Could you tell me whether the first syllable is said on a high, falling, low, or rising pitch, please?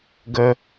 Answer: high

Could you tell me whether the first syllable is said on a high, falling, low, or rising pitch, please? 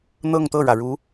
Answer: falling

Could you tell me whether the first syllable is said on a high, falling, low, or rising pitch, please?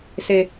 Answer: low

